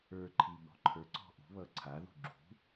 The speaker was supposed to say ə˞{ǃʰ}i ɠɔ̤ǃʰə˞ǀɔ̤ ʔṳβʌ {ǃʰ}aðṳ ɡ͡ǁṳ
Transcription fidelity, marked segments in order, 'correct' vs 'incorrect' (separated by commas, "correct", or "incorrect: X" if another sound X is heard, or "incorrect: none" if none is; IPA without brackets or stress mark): correct, incorrect: ǀʰ